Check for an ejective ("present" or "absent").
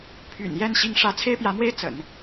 absent